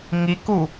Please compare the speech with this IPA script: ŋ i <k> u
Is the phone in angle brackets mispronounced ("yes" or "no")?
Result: no